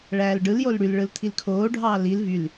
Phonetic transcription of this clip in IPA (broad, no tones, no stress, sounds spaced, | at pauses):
ɭ æː l ɖ ɯ l j o l ɽ y l ɭ ɯ l t̪ʰ i l kʰ oː ɖʱ ɑː l i l v y l